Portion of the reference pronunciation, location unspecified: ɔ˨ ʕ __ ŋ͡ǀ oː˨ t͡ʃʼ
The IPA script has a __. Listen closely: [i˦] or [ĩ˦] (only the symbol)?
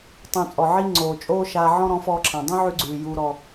i˦